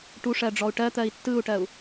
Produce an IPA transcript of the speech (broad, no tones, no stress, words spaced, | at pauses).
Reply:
ʈuʂɜɖ͡ʐɔu̯ ʈɜt̪ɜi̯ tːɯu̯ʈɜu̯